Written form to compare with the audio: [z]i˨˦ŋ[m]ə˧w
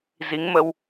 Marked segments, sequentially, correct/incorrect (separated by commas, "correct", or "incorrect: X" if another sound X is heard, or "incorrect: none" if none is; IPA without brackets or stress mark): correct, correct